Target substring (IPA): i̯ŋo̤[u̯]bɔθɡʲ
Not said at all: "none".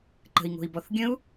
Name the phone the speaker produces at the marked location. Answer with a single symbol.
i̯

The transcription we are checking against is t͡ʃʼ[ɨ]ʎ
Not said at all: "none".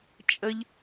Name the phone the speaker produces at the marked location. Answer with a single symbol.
ə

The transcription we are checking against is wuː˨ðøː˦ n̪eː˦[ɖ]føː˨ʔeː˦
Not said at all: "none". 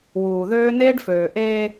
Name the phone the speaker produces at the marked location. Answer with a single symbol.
ɖ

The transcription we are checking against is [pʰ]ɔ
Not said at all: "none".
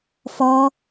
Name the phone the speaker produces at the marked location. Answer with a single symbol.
f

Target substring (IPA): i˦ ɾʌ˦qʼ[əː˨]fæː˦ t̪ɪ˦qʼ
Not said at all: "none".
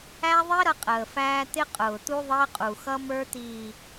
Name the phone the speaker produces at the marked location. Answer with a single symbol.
əː˨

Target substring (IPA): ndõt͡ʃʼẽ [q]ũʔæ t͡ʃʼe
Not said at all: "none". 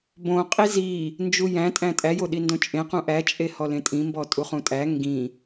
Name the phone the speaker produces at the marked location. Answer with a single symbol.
q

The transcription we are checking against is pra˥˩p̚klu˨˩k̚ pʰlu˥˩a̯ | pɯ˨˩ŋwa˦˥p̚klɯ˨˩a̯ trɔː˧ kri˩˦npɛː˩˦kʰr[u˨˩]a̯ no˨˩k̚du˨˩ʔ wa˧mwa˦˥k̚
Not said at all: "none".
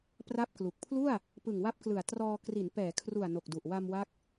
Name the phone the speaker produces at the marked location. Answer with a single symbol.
u˨˩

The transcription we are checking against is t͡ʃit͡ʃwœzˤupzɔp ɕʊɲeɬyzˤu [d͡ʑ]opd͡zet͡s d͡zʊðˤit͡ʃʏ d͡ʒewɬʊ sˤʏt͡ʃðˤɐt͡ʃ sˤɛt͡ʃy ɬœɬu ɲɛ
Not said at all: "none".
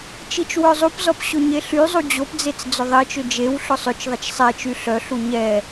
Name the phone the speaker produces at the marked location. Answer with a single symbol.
d͡ʑ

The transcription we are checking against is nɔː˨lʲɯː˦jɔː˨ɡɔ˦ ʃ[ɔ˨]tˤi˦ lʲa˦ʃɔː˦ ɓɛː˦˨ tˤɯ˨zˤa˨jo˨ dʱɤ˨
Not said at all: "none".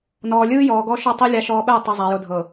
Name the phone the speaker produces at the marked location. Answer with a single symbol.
ɔ˦˨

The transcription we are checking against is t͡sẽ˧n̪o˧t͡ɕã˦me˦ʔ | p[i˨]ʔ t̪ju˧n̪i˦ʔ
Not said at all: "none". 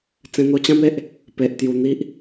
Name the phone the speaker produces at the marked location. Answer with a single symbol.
e˨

